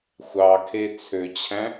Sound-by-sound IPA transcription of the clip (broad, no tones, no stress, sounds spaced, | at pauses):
xʷ ɑ kʰ e t͡sʰ ø t͡ɕʰ æ̃